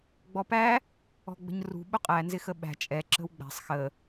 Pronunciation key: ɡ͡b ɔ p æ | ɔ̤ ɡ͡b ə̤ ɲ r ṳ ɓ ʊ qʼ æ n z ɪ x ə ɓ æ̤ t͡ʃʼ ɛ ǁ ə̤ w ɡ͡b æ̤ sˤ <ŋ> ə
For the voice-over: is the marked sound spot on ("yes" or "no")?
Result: no